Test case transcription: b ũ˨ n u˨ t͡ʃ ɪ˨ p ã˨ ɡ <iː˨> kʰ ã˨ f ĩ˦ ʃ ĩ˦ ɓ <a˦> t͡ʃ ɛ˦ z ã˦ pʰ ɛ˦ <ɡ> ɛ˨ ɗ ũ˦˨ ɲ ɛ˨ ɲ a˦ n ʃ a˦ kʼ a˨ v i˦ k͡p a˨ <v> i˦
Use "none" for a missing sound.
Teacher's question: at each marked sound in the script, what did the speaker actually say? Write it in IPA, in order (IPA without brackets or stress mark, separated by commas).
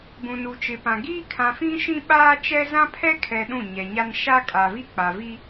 iː˦, aː˦, kʰ, v